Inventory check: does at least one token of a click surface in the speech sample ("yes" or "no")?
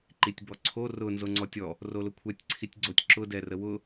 yes